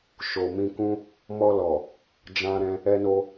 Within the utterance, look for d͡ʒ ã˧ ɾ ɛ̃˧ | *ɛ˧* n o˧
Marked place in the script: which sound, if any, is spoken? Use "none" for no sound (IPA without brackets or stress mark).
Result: ɛ˧